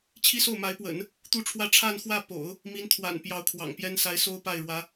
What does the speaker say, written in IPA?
t͡ɕʰ i˥ s o˥˩ ʊ̯ m a˧˥ ɪ̯ p w ə̰˨˩˦ n | t̪ u˥˧ ʈ͡ʂʰ w ä˥˧ ʈ͡ʂʰ a˥˧ n x w ä˥˩ p o̰˨˩˦ ʊ̯ | m i˧˥ n t̪ʰ w a̰˨˩ n p j ɑ˧˥ ʊ̯ kʰ w ɑ̰˨˩ ŋ p j ɛ˥ n s a˧˥ ɪ̯ s o˥ ʊ̯ p a˥˩ ɪ̯ ɻ w ä˧˥

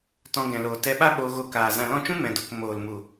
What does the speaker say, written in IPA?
t ɔ̃˧ ɡ ɛ̃˨ l oː˨ t ɛ˧ ɓ a˦ ɓ oː˧ ɣ o˧ k aː˨ z ã˨ l ɔ̃˦˨ t͡ʃ ũ˦ m ɛ̃˨ d o˨ k m oː˨ l m u˨

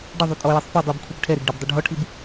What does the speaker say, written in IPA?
ɖ ɪ ðˤ u tʼ ɔ j i sˤ f e dˤ i b kʷʰ e b ʈʰ ɛ ɾ e ɡ ɖ ɪ b dˤ ʊ ɖʱ ɔ ʈʰ i b

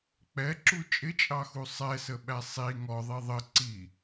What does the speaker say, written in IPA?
k͡p ɛ ǁ u t͡ʃʼ ɪ t͡ʃʼ ɑ x u sˤ ɛ s ə ɓ æ sˤ i ŋ ɔ ðˤ i ðˤ ə ǀ i

